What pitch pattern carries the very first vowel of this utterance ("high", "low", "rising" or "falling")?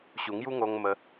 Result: low